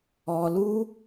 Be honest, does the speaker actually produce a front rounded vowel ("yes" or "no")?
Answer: no